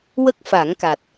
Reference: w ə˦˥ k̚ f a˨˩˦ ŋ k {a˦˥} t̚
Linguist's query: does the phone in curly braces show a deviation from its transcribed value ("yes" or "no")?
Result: yes